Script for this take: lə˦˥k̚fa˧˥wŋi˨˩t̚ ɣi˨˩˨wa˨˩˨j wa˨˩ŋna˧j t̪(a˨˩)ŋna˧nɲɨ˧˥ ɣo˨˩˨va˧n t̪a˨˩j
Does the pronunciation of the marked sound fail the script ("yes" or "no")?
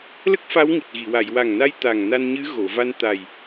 no